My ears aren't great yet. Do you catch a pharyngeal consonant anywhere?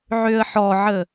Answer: yes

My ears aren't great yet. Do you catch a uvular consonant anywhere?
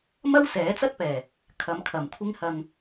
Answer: no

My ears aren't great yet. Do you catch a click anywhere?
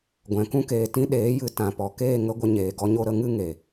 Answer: no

